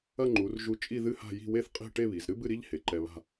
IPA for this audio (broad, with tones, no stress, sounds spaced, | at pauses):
ɐ˥˧ ŋ͡ǃ u˩˧ r ʒ u˧ t͡ʃʼ i˥˧ ð ɨ˥ h a̤˥˧ j i̤˥˧ w e˥˧ θ qʼ e̤˥˧ ʈ e˥˧ β i˩˧ z ɾ ɨ˥ b ɨ˥˧ ɾ i˥ ʎ h e˩˧ ǃ ɛ˧ β a̤˥˧